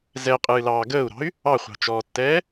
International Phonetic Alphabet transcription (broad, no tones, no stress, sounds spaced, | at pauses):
z ɛ qʼ ɨː l ɑː ɡ əː u̯ ɾ ɑ̤ y̯ | ɑ χʷ ɑ̤ t͡ʃ ɔː tː ɛː